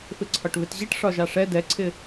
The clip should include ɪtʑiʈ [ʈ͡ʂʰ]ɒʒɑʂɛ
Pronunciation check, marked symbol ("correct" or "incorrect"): incorrect